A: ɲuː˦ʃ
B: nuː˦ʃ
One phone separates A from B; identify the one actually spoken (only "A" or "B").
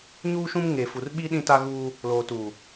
A